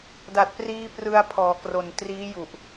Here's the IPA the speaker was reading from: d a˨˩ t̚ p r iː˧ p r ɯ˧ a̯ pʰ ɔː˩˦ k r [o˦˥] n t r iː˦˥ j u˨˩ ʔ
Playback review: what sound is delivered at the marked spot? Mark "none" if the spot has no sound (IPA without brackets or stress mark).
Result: o˨˩